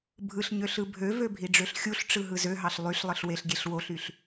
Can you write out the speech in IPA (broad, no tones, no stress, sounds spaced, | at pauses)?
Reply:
bʱ ɯ ɬ ɲ ø ɬ ɯ bʱ ø v ø bʱ i ɖ͡ʐ ø ɬ xʲ u ɬ ʈ͡ʂ ɯ ɦ ɯ z ø ɦ ɑ ɬ lˠ y ɬ lˠ ɯ ɬ w e ɬ ɡʲ e ɬ w o ɬ y ɬ